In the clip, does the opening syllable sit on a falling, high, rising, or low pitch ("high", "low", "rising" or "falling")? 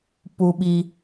high